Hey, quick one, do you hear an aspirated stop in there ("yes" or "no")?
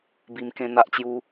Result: no